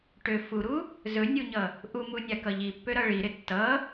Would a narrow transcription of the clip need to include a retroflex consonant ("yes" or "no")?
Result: yes